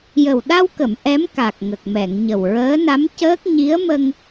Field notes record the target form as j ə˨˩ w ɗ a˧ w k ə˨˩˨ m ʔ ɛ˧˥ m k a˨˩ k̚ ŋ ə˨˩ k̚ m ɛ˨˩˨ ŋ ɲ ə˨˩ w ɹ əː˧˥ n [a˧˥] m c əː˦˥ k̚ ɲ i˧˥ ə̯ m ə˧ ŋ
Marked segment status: correct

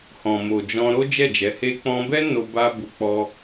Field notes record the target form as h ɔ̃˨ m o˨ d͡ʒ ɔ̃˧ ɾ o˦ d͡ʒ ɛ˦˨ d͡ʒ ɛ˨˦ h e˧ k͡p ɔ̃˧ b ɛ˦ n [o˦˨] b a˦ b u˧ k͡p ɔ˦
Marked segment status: incorrect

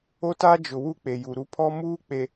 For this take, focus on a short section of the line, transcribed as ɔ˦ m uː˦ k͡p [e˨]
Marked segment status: correct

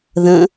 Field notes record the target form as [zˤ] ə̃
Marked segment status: incorrect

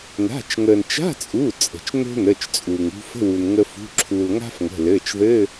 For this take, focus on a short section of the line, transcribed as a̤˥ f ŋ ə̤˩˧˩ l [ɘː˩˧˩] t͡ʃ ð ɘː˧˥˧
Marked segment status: correct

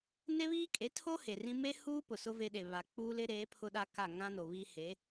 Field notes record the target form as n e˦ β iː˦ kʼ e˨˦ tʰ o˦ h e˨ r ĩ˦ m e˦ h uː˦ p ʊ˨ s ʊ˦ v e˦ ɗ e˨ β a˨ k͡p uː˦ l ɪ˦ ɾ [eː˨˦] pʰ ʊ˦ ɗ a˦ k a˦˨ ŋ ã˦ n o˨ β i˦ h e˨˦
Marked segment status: correct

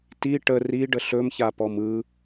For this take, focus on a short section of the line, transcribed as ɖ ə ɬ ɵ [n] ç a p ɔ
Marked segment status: incorrect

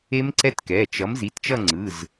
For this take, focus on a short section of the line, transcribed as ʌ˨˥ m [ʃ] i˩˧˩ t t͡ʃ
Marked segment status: incorrect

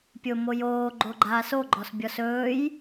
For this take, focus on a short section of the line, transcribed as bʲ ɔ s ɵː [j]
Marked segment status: correct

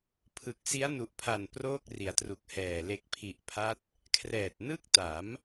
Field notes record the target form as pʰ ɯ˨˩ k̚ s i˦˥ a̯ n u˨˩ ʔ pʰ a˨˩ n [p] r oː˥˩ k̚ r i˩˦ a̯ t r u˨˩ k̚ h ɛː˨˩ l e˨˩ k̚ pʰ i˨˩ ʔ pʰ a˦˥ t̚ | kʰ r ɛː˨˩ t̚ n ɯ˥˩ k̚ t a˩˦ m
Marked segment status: correct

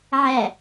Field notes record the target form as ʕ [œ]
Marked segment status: incorrect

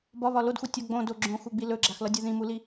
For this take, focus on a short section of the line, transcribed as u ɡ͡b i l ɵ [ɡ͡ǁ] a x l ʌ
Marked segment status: correct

